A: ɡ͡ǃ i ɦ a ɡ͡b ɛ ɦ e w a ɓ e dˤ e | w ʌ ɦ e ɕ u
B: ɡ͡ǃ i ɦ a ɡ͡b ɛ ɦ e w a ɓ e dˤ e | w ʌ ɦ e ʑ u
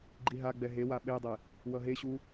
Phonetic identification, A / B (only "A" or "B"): A